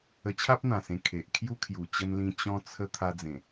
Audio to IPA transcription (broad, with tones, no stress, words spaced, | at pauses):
ə˧t͡ɕʰa˦p̚n̪ã˨˩sẽ˨˩ kʰe˨ʔ kʰju˦kʰju˨˩t͡ɕə˧nlĩ˧ t͡ɕɔ̃˧t͡sʰə˧ t̪ʰa˧d͡zẽ˨˩